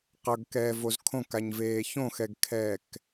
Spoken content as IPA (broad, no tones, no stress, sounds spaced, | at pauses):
q ʌ ɡ k ɛː v o z kʰ õ k a ɲ v eː ç õ x ɛ ɡ kʰ ɛː k